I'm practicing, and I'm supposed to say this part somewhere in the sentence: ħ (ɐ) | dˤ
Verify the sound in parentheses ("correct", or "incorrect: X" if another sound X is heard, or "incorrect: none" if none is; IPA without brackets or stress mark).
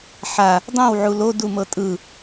incorrect: a